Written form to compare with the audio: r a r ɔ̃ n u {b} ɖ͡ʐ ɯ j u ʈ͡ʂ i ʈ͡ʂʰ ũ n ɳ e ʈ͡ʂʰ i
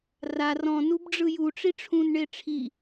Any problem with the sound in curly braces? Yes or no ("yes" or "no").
no